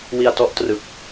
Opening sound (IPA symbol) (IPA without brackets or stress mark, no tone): w